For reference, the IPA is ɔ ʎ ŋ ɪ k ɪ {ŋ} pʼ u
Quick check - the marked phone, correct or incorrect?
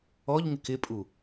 incorrect